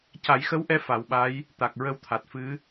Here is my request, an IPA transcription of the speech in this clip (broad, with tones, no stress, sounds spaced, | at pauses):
c a˨˩˦ j x ə˧˥ w ʔ ɛ˧˥ f a˨˩˦ w ɓ a˧˥ j | t̪ a˨˩ k̚ ɹ ə˧ w t̪ʰ a˨˩ t̚ f ɨ˧˥